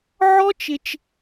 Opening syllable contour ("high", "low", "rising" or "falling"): high